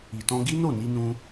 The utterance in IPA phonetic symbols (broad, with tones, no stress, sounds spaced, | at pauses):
i˨ t ɔ̃˧ ɡ i˦ n o˦˨ n i˧ n ũ˧